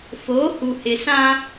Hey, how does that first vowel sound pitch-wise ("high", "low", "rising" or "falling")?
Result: rising